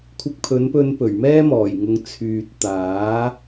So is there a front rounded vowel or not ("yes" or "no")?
yes